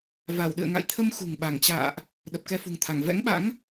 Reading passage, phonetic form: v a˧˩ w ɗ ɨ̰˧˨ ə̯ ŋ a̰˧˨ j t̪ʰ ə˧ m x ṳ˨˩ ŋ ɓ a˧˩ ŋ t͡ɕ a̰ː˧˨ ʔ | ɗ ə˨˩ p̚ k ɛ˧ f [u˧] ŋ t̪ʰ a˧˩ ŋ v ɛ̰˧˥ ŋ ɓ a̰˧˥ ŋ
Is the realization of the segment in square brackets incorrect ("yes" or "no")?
yes